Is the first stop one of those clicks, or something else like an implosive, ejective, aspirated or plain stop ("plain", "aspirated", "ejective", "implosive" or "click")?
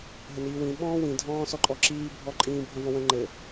implosive